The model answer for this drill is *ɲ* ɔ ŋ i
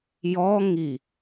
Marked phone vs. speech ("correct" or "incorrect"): incorrect